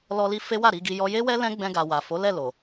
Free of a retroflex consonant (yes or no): yes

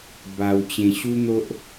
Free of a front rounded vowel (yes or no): yes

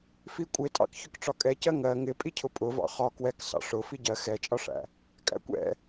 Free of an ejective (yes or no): no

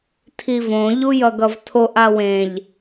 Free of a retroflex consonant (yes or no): yes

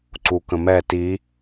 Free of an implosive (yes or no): yes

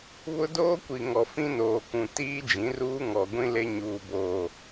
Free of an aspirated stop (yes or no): yes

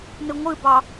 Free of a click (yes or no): yes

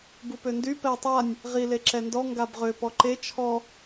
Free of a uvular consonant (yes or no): no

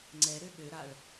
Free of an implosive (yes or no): no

